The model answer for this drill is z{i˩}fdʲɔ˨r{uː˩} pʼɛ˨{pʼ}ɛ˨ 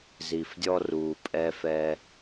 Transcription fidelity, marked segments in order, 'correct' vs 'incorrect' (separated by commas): correct, correct, incorrect